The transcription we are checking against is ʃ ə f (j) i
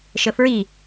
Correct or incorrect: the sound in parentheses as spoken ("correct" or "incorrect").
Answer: incorrect